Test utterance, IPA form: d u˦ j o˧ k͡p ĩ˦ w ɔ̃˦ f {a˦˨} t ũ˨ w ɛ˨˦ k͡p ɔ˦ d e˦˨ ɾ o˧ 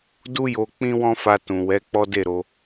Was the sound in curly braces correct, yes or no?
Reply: no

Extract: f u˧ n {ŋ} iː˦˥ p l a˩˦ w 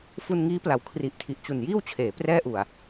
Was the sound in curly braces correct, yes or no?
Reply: yes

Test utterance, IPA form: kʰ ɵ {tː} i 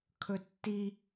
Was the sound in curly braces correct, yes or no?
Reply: yes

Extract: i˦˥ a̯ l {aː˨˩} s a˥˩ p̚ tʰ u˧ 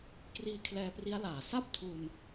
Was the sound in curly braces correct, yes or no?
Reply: yes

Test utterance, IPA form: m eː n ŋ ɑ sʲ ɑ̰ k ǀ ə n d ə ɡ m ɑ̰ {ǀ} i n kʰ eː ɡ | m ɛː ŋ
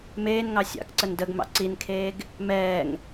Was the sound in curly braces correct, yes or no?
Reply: yes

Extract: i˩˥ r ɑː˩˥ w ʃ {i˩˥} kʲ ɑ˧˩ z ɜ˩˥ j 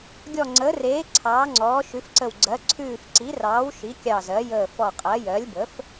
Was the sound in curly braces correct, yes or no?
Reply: yes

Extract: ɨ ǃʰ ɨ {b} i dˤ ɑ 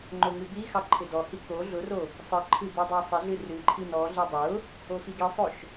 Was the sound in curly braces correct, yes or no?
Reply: yes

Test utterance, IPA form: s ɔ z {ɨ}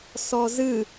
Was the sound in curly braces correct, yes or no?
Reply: yes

